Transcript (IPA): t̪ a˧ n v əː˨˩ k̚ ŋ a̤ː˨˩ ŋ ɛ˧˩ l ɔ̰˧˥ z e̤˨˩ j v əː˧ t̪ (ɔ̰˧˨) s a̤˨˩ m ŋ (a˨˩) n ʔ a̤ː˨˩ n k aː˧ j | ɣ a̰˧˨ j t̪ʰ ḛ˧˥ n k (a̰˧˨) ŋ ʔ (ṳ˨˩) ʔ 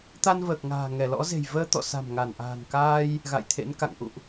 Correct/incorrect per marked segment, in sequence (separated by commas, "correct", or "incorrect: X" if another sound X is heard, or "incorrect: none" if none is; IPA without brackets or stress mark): correct, incorrect: a˧˩, correct, incorrect: ṵ˧˨